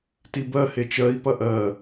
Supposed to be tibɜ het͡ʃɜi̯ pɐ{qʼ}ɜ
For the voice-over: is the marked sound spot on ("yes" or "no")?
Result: no